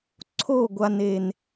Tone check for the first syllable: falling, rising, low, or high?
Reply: falling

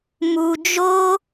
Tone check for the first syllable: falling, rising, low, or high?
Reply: low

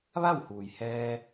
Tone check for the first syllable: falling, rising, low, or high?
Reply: falling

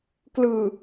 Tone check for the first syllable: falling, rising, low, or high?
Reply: low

